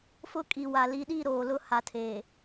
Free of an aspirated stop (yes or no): no